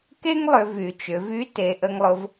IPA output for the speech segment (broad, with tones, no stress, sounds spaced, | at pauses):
k e˥ ŋ lˠ ʏ˩˧ v y˩˧ t͡ʃ ʏ˩˧ v y˧˥ t e˩˧ ʔ ə˧ ŋ lˠ ʊ˧ v